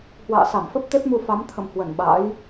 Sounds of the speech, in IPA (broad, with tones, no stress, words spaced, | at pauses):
hwa̰ː˧˨sa˧˩mfə˦˥p̚ t̪e˦˥p̚mu˧fa˨˦m t̪ʰə̰˧˨mhwə˧˩n ɓa̰˧˥j